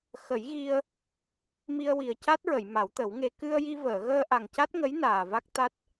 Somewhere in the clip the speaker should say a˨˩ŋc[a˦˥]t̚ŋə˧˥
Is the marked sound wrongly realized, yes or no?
no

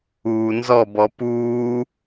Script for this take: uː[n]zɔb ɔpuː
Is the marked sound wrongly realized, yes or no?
no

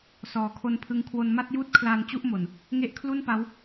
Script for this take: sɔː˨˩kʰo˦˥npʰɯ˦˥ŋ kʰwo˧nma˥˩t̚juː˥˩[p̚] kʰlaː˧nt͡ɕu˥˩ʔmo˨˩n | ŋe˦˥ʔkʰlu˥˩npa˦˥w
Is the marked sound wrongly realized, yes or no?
yes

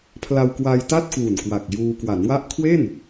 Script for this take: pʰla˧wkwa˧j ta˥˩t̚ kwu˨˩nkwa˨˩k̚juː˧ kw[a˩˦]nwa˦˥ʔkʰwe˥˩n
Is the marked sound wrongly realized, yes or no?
no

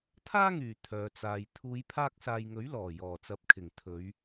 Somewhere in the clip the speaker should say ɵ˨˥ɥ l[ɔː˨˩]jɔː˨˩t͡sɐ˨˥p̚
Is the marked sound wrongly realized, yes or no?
no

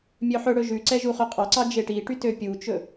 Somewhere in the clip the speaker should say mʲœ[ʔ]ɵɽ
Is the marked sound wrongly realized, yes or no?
yes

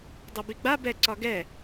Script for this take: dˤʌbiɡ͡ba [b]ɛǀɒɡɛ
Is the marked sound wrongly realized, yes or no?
no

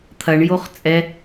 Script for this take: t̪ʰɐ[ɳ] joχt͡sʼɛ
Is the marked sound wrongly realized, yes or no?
no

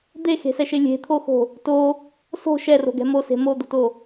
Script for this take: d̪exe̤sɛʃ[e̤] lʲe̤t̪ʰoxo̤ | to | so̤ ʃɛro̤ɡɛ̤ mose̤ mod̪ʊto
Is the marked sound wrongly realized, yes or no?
yes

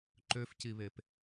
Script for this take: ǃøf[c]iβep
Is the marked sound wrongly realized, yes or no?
no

